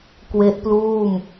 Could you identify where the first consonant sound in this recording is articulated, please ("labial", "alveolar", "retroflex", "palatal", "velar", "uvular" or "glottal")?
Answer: velar